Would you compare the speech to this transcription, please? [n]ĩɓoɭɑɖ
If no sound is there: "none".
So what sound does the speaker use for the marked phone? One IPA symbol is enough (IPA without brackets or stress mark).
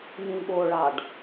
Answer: n